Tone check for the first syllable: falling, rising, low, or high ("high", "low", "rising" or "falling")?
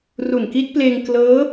low